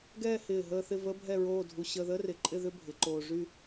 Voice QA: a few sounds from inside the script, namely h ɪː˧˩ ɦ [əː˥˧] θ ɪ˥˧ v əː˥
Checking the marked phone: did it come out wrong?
no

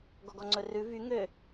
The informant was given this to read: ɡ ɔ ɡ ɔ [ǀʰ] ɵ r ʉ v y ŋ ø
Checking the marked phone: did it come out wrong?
yes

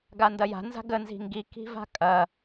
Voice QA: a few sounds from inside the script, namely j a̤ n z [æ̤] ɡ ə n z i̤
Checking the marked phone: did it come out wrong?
yes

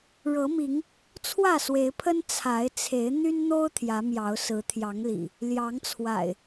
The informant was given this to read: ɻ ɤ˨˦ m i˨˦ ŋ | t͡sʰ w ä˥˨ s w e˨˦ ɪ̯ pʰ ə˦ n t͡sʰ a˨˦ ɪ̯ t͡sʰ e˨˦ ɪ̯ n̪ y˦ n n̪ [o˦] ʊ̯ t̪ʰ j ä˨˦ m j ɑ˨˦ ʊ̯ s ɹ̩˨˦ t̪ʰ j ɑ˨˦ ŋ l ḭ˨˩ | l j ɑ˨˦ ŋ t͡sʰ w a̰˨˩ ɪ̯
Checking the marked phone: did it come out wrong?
no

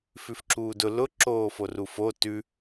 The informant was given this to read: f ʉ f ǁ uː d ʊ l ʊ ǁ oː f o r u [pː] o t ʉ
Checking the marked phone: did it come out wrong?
yes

